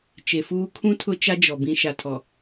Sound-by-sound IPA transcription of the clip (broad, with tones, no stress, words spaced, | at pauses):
t͡ʃe˨fuː˦ kʰũ˦ tʰʊ˦t͡ʃa˦d͡ʒɔ˨ bĩ˨ ʃa˨tʰɔ˨